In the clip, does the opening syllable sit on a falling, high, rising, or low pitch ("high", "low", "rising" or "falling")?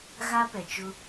high